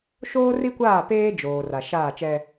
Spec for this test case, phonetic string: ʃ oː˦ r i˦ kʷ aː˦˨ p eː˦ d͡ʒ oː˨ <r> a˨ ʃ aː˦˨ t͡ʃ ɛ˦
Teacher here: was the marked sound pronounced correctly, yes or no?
yes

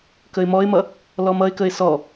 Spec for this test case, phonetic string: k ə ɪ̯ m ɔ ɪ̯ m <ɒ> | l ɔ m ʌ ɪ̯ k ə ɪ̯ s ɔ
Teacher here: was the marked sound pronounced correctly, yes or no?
no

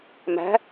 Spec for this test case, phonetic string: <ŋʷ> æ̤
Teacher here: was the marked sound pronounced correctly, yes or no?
no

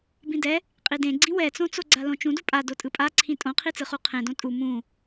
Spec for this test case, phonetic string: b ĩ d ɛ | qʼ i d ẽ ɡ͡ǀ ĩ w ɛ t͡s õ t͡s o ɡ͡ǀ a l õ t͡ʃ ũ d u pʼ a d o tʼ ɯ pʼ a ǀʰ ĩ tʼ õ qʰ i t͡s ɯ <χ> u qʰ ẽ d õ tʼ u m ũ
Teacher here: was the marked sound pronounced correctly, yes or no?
yes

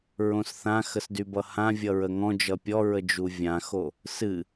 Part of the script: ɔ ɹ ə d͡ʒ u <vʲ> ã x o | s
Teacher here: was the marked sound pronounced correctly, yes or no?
yes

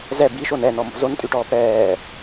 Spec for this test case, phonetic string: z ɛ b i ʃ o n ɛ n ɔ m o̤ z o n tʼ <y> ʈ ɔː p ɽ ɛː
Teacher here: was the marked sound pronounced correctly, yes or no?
yes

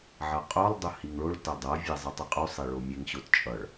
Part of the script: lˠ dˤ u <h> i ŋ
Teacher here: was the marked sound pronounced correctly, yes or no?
yes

